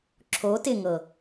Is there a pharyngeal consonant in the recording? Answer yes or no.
no